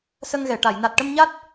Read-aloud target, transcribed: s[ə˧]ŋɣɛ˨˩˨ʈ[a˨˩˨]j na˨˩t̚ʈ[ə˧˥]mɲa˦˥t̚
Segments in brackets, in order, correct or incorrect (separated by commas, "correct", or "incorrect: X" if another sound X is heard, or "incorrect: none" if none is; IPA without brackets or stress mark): correct, correct, incorrect: ə˧